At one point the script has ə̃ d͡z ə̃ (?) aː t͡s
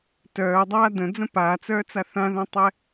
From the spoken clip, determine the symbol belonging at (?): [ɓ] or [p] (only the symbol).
p